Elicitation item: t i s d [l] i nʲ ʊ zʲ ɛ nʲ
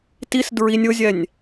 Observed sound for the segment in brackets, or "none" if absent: ɹ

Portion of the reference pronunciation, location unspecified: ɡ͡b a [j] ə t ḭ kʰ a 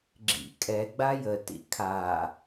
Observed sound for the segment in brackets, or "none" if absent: j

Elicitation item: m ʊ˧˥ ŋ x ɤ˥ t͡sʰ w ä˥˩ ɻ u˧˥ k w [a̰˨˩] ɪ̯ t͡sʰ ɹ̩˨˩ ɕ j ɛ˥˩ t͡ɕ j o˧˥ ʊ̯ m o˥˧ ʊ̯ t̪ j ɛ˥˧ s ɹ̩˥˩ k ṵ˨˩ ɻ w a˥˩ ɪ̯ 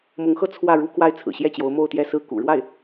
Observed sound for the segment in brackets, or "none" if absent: a˥˩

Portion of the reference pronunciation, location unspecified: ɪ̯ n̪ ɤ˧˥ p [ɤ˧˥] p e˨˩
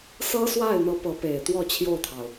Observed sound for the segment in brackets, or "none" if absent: ɤ˧˥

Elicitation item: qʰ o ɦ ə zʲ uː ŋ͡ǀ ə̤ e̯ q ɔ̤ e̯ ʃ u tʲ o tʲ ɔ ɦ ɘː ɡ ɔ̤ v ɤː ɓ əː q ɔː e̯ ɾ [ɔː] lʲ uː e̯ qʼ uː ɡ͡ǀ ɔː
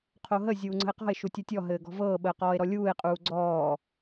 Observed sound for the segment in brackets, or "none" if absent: ɔ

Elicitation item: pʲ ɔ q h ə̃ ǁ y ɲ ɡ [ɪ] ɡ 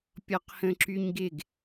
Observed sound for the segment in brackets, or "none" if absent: ɪ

